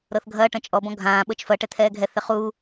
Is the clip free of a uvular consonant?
no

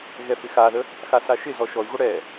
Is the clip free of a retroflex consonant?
no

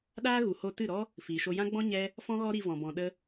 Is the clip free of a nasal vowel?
no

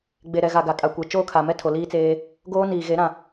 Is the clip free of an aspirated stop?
no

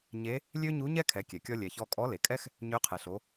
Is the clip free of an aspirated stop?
no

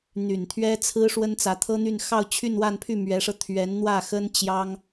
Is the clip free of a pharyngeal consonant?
yes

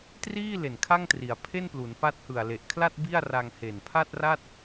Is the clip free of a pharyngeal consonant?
yes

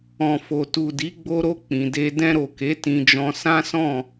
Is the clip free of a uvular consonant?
yes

